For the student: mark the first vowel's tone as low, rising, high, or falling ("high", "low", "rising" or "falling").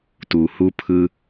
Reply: low